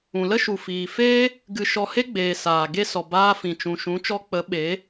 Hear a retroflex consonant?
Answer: no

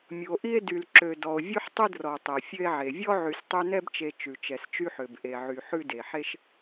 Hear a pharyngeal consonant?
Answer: yes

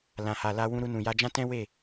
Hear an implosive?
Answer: no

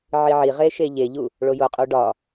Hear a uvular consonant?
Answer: yes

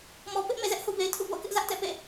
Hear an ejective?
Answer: no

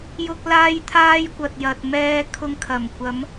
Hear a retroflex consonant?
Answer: no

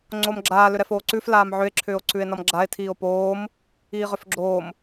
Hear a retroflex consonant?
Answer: no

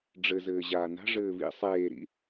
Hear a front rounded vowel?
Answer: no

